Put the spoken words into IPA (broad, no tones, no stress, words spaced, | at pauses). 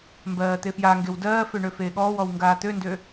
mbɜːt̪efjaŋɡew dɜːfø ɳøfeːɠɔːwɔw ŋɡaːt̪øndø